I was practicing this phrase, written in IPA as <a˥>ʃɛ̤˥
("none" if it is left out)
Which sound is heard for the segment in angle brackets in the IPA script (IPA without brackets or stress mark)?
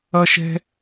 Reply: ʌ˥